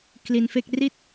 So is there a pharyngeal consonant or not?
no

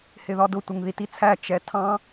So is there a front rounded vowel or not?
no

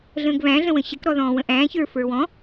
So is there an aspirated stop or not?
no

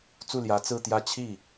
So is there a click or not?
no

